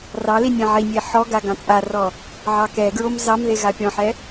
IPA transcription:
r ɑ l i nʲ ɛ̃ ʕ i nʲ e ħ ɔ ɡ a ɡ ɑ̃ t͡sʼ a r ɔ | ʕ ɑ k ɛ ɡ ɹ o m z ɑ m ð e ɣ a pʲ ɔ̃ ħ ɛ

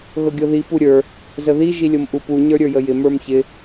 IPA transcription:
ɣ ɤ ɡʲ ɤ ð i p u ɾʲ ə˞ | z ə ð i ʒ i lʲ ɤ m ʔ u p u ɲ ə˞ ɾʲ ə˞ j ə j ɪ m ə˞ m ç ɪ

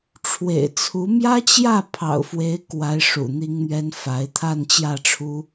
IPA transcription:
ʈ͡ʂʰ w ḛ˨˩ ɪ̯ t͡sʰ u˧˥ m j ä˥ t͡ɕ j ä˥˩ pʰ ɑ̰˨˩ ʊ̯ f w e˧˥ ɪ̯ k w a˧˥ ɪ̯ ʂ ṵ˨˩ n̪ i˥ ŋ n̪ ɥ ɛ˥ n f a˧˥ ɪ̯ t̪ʰ a˥˧ n t͡ɕ j ä˥˩ ʈ͡ʂʰ u˥

